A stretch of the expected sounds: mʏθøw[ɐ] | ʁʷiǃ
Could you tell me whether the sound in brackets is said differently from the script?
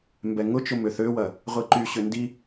no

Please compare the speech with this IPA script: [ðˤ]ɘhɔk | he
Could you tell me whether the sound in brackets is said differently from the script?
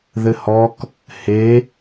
yes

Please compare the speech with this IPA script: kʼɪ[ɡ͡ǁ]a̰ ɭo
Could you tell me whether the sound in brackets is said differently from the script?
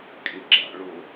no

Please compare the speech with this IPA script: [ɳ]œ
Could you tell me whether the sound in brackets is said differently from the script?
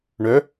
no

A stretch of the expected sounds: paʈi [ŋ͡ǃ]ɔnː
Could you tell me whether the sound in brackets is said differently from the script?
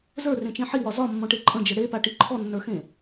yes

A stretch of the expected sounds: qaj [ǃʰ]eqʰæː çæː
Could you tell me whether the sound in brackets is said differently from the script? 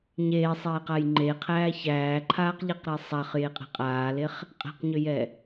yes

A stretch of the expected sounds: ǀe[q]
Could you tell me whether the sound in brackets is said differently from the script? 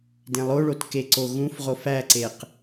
no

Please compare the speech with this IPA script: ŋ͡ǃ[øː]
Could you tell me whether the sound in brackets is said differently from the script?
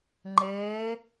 yes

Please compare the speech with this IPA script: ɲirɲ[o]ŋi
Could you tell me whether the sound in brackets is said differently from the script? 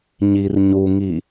yes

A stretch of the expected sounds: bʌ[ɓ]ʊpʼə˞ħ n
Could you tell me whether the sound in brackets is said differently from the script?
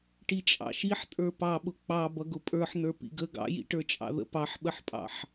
yes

